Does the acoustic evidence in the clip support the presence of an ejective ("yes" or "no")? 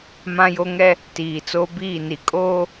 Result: yes